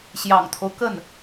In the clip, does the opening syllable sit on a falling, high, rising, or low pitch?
low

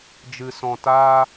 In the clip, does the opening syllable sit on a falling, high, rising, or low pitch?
low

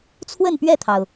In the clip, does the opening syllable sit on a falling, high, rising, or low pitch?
falling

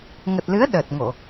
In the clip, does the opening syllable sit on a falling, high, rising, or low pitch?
low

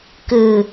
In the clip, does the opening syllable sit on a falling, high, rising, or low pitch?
low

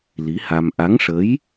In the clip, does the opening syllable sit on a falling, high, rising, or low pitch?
rising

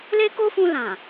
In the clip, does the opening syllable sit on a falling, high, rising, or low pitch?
high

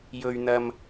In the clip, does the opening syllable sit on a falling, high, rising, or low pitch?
low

